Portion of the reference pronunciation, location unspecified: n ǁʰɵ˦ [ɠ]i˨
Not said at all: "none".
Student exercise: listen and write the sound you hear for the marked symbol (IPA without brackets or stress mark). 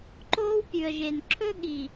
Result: ɠ